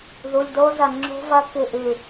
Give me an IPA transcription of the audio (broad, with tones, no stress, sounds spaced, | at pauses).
ð u˩˧˩ lʲ d o˦˥ z ɐ˧˩ ŋ͡ǁ o̤˦˥ v ɐ˦˥ k ɨ˧˩ ʔ ʉ˧˩